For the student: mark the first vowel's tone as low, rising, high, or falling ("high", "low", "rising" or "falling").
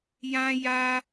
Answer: high